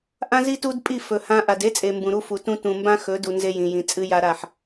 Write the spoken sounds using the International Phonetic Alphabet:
ʔã˦zi˦tu˦dpʼi˦˨ fɵ˨hã˦ ʔa˨de˦t͡sʼe˨ mbũ˨ɾu˦fu˨tũ˦ tũ˨ mbã˦xɵ˨˦du˨ nze˦jĩ˨jĩ˨ t͡sʼɨ˦ja˦ɾa˦˨ħ

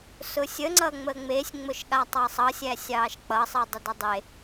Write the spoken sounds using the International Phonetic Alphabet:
sʊsʲəŋ͡ǀʌ ŋ͡məŋ͡mesʲŋ͡mʊʃɠa tˤɑsˤʌ sʲæsʲɑːʃk͡pʌsˤi dˤədʌdˤe

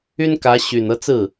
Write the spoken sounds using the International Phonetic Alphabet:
y˥nkä˧˥ ɕy˨˩n ɤ˥˧t͡sɹ̩˥˩

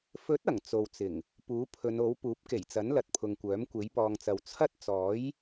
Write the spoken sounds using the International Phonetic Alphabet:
fɵ˨˥t̚ ɐ˨˩ŋt͡so˨wt͡sɪ˨˩ŋ | puː˨˥pʰɵ˨˧no˨˥w puː˨˥p̚ke˨˩jt͡sɐ˨˥n lɐ˨t̚pʰʊ˨ŋkʷœː˨˥m kʷe˨˥jpɔː˨ŋt͡sɐ˨w t͡sʰɐ˥t̚t͡sɔː˨˥j

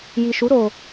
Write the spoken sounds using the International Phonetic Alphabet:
ji˨ʃu˨˦ ɾo˧

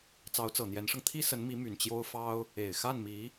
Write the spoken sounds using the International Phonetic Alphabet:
t͡sɑ˧˥ʊ̯t͡sɤ˨˩n̪jɛ˧˥nʂɤ˧ŋ t̪ʰi˥sə˧˥nmi˧˥ my˨˩nt͡ɕjo˥ʊ̯fɑ˥ʊ̯ | e˨˩ɪ̯xa˥˩nmi˧˥

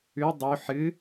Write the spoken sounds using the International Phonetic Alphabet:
ʉ dˤu ħɨ

